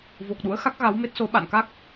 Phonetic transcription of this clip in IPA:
vo˨˩k̚ɗṵ˧˥ə̯xa˦˥k̚ ɣa˨˦wme˦˥t̚so˨˦ ɓa̰˧˨nka˦˥k̚

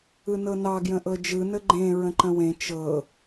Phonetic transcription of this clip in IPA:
ɯnɤnɑ ɡjə̃ʔɤd͡ʒɯ nəɡ͡ǃẽ ɹə̃ǃə̃wẽ t͡ʃɤ

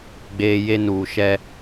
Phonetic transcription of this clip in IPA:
ɡ͡beː˦ je˦nuː˨ ʃɛ˦

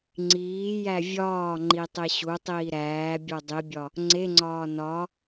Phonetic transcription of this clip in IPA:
ŋ͡ǀiːjæ vʲɒːŋ͡ǃi tˤeɕutˤiː ɾæːbʲo dˤibʲɒ | ŋ͡ǀeŋ͡ǀɒː nɒ

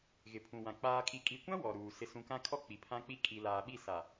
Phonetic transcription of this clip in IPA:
ɣɪ˨pʰũ˨wã˨ k͡paː˨kʼi˨kʼi˨kʷã˦ wɔ˨ɾuː˨ sɪ˨sũ˨kã˦kʰɔ˦ k͡pi˨pʰã˦k͡pi˦ kʼi˨laː˨ɓi˦˨ sa˨

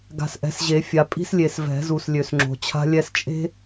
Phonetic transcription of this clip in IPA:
ɡa̤˨sʔɛ̤˨˩˦sʑe˨˩˦fʲa˨˩˦ pʼi̤˥slʲe˨s vɛ̤˨˩˦zu˨s lʲø˨sŋ͡ǁo̤˨ t͡ɕʰa̤˥lʲɛ˥s t͡ʃʼe̤˥

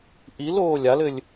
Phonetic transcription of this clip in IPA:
ʔil oːlʲalɘlʲ

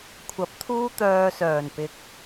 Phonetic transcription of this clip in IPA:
kʷʰɐ˨˥p̚t̪ʰuː˥t̪œː˧sœː˨˩n pɪ˧k̚

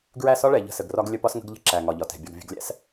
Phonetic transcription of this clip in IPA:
ɡɹæ˦˨sɒ˦ɭɛ˨ ʎə̤˦˨sə˨ɡrɒ˦ɡ lʲə˦pɒ˦sŋə̤˦ɡ ʎə̤˦ǁæ˨ ŋɒ˨ʎɒ˨tɛ̤˨ bʲɒ˨ɡ vʲə̤˨ɡlʲæ̰˦˨s

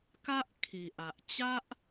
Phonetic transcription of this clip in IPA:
ka˦ʔkʰi˨ʔa˨ʔt͡ɕa˦ʔ

